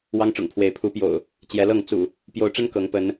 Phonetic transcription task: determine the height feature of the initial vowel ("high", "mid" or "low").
low